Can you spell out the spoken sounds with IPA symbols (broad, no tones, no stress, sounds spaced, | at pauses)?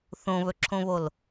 θ õ β ɵ ǁʰ õ β o l